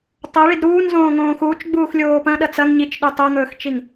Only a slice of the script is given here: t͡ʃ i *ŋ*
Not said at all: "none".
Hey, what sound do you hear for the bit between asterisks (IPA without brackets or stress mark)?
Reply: ŋ